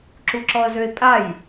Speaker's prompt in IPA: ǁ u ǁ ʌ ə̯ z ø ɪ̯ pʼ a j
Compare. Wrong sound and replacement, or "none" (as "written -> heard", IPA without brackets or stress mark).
ʌ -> ɔ